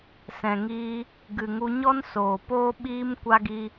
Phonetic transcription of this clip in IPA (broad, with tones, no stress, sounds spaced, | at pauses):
s ɛ̃˨ ŋ iː˧ | ɡ ɨ˨ ŋ u˧ ɲ ɔ˦ n s oː˨ p oː˦ ɓ iː˦ m kʷ a˦ ɡ i˦